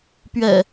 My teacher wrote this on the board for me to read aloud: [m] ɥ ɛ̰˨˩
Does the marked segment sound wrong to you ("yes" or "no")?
yes